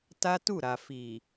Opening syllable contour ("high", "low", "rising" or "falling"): high